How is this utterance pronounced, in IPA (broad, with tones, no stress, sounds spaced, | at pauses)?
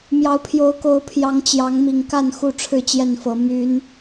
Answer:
m j ɑ˨˦ ʊ̯ pʰ j o˨˦ ʊ̯ k o˨˦ ʊ̯ pʰ j ɑ˨˦ ŋ t͡ɕ j ɑ˨˦ ŋ m i˨˩ ŋ k a˥˨ n x u˥˨ ʈ͡ʂʰ ɻ̩˥˨ t͡ɕ j ɛ˥˨ n f ɤ˨˦ m y˨˦ n